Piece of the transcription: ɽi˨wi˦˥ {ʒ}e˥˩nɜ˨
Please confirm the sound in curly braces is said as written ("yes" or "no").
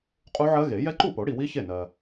no